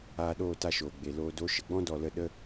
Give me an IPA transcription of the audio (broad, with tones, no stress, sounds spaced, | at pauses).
aː˧ ɗ oː˦˨ t a˧ ʃ oː˨ ɡ͡b e˨ l oː˧ d o˨˦ ʃ ə˨ ɡ͡b ɔ̃˦ d ɔ˧ l ə˧ ɗ ə˦